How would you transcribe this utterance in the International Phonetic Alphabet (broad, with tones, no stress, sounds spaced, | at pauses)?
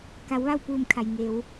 k a˩˧ w ʋ a˥˨ w p uː˧˩ m kʰ a˩ j ŋ e˩˧ w